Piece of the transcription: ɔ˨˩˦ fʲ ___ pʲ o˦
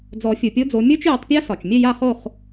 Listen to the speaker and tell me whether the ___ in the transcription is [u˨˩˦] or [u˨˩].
u˨˩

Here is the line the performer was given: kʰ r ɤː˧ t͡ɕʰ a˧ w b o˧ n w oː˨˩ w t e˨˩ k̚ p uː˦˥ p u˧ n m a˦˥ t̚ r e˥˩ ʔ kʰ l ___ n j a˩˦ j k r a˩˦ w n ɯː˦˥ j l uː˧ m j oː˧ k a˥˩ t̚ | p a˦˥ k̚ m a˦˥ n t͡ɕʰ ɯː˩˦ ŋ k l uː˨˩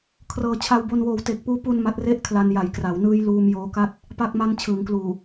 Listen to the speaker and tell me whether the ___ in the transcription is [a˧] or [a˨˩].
a˧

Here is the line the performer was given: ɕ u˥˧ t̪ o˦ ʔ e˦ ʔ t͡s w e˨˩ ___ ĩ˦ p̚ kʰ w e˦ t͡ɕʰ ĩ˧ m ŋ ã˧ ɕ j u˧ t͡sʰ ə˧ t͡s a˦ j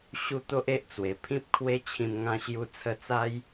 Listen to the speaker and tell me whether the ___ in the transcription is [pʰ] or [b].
pʰ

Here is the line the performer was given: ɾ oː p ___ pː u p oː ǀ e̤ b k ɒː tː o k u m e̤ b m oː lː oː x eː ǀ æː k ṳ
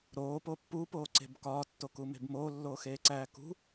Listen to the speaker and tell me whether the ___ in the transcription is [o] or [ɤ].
o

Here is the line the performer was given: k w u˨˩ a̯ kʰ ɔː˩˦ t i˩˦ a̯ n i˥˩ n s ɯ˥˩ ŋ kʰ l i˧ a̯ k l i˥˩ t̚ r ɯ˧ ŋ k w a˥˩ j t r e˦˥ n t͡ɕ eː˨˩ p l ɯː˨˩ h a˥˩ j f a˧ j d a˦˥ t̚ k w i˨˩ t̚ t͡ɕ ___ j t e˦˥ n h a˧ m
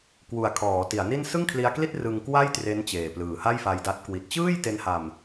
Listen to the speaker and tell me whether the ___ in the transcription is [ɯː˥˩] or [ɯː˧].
ɯː˥˩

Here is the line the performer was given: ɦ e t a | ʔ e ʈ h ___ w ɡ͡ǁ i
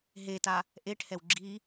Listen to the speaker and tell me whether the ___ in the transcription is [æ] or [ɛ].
ɛ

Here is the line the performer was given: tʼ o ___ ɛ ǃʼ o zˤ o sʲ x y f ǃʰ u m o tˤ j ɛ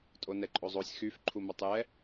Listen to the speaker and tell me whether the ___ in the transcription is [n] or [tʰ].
n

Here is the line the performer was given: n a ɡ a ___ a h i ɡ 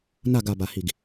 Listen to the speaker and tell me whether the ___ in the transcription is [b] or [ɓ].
b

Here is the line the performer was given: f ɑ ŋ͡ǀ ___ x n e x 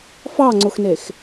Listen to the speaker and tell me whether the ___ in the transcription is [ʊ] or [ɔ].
ʊ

